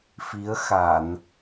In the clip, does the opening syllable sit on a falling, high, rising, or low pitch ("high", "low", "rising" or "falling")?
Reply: rising